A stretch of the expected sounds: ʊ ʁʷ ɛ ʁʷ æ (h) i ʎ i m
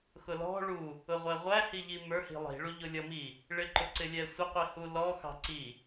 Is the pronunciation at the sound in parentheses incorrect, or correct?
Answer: correct